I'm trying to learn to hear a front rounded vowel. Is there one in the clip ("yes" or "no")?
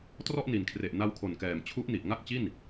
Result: no